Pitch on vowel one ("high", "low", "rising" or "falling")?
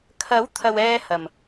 rising